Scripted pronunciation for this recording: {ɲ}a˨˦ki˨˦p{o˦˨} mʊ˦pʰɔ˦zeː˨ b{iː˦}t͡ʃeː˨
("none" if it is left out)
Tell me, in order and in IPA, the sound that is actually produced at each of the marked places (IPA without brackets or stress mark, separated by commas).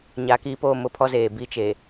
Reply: ɲ, o˦˨, i˦